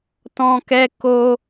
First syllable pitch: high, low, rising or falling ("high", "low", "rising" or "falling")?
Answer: high